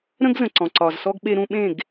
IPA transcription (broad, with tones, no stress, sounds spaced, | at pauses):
ɾ ə̃˦ ɡ z ə̃˨ ǀ ɔ̃˨ ǀ ɒ˨ z s ɔ˦ ɡ ɓ e˦ ɾ ũ˦ ɓ ẽ˦˨ ɡ